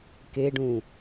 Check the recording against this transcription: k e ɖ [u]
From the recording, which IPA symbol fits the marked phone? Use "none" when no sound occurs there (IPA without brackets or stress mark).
ũ